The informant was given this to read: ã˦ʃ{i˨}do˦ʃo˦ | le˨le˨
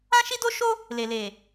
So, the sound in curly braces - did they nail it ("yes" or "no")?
no